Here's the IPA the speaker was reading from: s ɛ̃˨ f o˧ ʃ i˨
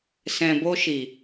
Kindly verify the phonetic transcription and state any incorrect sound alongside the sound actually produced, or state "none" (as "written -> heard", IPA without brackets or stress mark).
f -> b